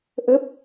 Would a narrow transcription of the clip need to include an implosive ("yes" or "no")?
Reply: no